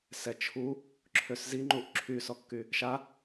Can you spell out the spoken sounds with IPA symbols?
s ɛ t͡ʃʰ u | ǁʰ ø s z i ŋ͡ǃ u ʔ ǁʰ y s ɔ kː y | ʃ a

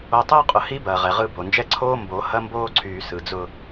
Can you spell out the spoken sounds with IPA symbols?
o˨ tˤ ʊː˦ qʼ ʊ˨ h i˦ b ɐː˨ ʁ ɛ˨ ʁ ɯ˦˨ b o˨ n d͡ʒ ɛ˦ ǀʰ oː˦ m b o˨˦ h ɐ˦ m b oː˦ ǀʰ yː˨ s ɯ˨ d͡z ʊ˦

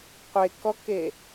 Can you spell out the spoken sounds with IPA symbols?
qʷ e k ɔ k e

